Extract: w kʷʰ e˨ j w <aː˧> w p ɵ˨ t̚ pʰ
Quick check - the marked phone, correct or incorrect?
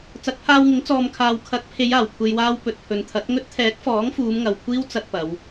correct